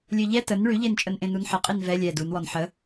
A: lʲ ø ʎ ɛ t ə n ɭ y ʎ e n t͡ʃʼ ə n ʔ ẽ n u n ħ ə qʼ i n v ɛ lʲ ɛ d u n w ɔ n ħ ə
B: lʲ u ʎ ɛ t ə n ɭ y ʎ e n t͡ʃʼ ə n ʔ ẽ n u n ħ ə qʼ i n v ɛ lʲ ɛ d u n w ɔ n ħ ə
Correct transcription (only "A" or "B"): A